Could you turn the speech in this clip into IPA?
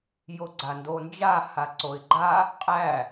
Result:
joɡ͡ǀandond͡ʒa haǀoɪ̯ɡ͡ǃa | qʼæ

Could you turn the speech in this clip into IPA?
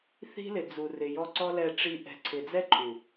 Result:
θi̤˦lɪ˨d͡zu˨ rɪ˨jɔ˧ǀɔ˦ lɛ˧ʈ͡ʂi˧ ʔɛ̤˨ǀʰɪ˨d͡zɛ˦ ǃʰu˨

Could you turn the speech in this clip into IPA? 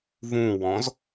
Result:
vũwɔ̃z

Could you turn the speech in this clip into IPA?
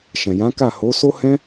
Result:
ʃɛ̃˨jã˨˦ka˦˨ ho˨˦ so˦hɛ̃˦

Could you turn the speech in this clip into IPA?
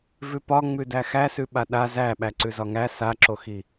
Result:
vʉpɒ ŋ͡mʉdæxæsʉ ɓaɗa zæ ɓæǀʉzɒŋæ saǁoxi

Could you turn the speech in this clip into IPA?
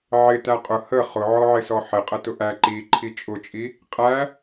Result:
ʕɪ tæqʼʊ hə χʊʕɔʕɪsɔ ħɪqʼə tʊʔæ ǃi ǃʰit͡ʃʼʊt͡ʃʼi | qʼæ

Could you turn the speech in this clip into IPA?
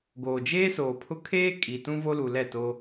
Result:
ɡoː˨d͡ʒeː˦soː˨pʰʊ˦ kʰeː˦ kʼiː˨tũ˦vo˦lu˨ lɛ˦˨to˦

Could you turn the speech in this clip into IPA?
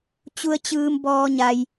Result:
t͡ɕu˧ə̯t͡ɕɯː˧m bɔː˧ɲa˧j

